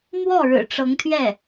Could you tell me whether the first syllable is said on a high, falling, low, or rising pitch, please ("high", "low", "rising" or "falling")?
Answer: falling